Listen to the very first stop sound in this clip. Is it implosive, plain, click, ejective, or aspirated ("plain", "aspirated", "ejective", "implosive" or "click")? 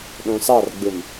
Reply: implosive